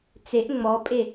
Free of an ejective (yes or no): no